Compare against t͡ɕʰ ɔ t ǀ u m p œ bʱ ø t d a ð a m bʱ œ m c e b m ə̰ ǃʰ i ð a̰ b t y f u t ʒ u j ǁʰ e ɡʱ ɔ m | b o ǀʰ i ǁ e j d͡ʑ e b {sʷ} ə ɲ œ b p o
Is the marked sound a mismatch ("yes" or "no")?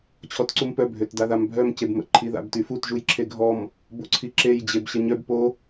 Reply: yes